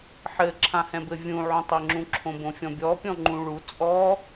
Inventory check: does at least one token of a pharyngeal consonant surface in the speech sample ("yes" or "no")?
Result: yes